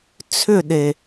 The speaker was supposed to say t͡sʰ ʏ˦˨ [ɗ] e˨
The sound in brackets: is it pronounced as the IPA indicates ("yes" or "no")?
yes